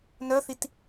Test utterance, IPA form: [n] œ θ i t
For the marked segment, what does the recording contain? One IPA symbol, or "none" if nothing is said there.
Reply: n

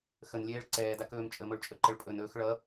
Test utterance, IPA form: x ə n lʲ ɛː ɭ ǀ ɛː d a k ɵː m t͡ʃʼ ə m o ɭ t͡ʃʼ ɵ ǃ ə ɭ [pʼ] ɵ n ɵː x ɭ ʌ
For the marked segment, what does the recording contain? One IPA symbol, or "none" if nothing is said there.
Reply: pʼ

